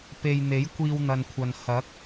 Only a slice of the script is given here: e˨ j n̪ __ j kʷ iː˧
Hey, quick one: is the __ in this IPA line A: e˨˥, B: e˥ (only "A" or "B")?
A